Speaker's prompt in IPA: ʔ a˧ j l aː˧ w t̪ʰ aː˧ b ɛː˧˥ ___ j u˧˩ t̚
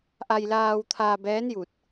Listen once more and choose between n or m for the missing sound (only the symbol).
n